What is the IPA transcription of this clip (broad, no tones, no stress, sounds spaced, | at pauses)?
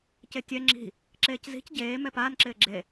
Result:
c e tʲ ɛ ŋ͡ǁ i̤ | ǁ eː c z i̤ c ɟ eː m ɛ p aː n ǁ ɪː ɡ͡ǁ e